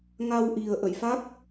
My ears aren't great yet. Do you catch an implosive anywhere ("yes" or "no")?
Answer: no